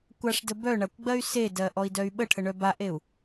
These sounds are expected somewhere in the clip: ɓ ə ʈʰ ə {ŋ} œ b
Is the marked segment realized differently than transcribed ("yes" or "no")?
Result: yes